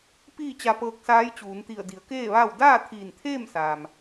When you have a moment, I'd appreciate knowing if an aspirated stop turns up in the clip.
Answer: yes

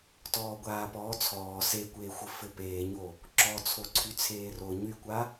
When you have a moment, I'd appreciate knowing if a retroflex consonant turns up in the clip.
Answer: no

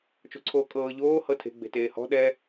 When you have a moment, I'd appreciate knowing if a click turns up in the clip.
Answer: yes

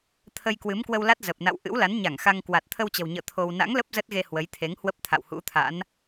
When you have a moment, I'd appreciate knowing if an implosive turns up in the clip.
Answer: no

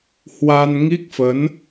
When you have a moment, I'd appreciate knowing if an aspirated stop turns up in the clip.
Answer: no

